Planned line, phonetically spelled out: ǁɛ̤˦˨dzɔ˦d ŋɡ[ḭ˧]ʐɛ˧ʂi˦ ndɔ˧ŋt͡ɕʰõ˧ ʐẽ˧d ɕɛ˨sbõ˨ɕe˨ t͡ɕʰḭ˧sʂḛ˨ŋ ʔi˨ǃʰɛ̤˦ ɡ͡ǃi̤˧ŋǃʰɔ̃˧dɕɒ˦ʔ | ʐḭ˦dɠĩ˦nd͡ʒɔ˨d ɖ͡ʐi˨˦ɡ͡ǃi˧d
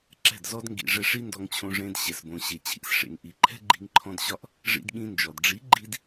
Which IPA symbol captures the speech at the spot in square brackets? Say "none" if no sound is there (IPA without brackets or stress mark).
ḭ˨